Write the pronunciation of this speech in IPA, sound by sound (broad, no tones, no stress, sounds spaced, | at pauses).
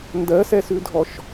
n d ɜ s ɛ s ʉ dʱ ɔ ʃ